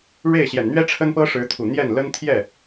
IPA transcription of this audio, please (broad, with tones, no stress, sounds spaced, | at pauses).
ɻ e˥˩ ɪ̯ ɕ j ɛ˨˩ n n̪ ɥ ɛ˥ ʈ͡ʂʰ ə˥ n p ɤ˥ ʂ ɻ̩˧˥ t̪ʰ u˨˩ n̪ j ɛ˥˩ n l ə˥ n t̪ʰ j ɛ˥˩